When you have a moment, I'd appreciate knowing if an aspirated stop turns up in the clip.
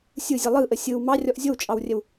no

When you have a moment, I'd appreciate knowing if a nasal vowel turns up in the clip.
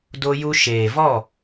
no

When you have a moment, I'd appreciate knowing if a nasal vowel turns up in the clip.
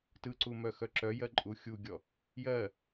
no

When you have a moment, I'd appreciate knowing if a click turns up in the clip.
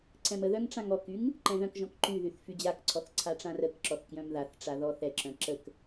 yes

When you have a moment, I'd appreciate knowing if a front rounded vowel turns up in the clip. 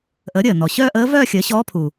yes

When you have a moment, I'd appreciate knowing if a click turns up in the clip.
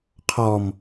no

